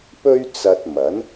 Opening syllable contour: high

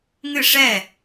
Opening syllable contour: falling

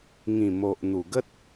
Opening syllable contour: low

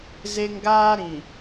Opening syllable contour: high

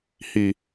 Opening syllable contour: low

